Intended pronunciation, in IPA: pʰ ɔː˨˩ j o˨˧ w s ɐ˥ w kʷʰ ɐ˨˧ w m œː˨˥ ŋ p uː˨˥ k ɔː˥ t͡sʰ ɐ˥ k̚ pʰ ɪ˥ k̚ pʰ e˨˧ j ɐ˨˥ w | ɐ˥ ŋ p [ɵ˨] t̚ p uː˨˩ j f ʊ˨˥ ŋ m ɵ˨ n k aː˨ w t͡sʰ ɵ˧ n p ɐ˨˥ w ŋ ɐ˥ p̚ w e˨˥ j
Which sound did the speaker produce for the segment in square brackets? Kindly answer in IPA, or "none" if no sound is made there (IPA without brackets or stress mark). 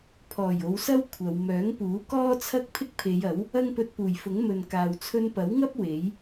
ɵ˧